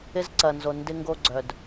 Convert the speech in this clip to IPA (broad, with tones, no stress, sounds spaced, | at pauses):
ɪ˧ z ǀ ɐ˩ n z o˩ n d ɪ˧ ŋ ɡ o˧ ɡ͡ǀ œ˩ d